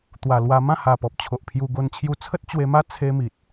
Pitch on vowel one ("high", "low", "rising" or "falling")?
low